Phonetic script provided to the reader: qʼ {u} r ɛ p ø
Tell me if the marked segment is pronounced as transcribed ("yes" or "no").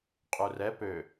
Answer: yes